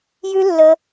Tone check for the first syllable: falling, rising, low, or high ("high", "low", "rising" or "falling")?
high